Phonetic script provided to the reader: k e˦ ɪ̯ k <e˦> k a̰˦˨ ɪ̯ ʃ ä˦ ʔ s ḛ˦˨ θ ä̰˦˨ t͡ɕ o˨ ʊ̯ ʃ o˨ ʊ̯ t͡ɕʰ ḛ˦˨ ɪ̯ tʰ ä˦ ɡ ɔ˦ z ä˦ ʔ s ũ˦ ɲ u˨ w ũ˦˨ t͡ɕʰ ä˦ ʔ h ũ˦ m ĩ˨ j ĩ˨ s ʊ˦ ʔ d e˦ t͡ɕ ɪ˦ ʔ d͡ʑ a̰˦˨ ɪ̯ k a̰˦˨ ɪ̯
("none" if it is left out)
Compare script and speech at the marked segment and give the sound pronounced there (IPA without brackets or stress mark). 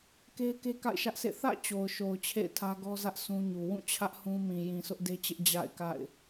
e˦